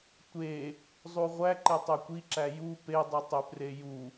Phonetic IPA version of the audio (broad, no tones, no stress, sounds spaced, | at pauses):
tʷ e | zˤ u ʁʷ æ ǃ e tˤ ø kʷ i ǁ æ j u p e dˤ u tˤ ø p r e j u